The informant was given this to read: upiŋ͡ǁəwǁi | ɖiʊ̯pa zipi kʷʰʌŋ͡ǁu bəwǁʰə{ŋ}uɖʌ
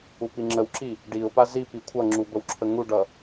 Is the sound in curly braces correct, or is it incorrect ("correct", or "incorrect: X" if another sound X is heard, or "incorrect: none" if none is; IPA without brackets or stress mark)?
correct